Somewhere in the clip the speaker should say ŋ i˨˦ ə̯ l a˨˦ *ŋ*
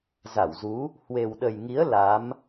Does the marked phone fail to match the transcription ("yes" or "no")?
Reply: yes